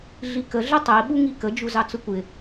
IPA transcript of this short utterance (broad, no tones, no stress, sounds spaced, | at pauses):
ɮ i k ə ɮ ə tˤ i ɓ u ŋ i k ə d͡ʒ u z ɑ t͡s ʊ kʷ ɪ